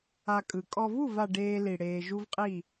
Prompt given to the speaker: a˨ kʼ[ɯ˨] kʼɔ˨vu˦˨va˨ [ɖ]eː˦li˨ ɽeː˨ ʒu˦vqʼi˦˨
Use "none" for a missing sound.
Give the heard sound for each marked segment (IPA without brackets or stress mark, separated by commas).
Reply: ɯ˨, ɖ